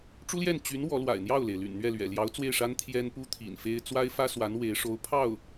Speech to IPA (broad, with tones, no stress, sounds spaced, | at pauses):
ʈ͡ʂ u˥ l j ɛ˥˩ n t͡ɕ y˧˥ n w ɔ˧˥ l w a̰˨˩ ɪ̯ n̪ j ɑ˥˩ ʊ̯ l e˩ ɪ̯ l y̰˨˩ n n̪ ɥ ɛ˥˩ l ɥ ɛ̰˨˩ l j ɑ˧˥ ʊ̯ t͡s w e˥˩ ɪ̯ ʂ a˥ n t̪ʰ j ɛ˥ n p u˥ t̪ʰ ḭ˨˩ n f e˥ ɪ̯ t͡s w a˥ ɪ̯ f ä˥ s w a˧˥ n w e˧˥ ɪ̯ ʂ o˧˥ ʊ̯ pʰ ɑ˥˩ ʊ̯